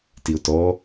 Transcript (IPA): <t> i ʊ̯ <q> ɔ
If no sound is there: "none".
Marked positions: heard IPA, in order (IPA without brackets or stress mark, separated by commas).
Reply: t, t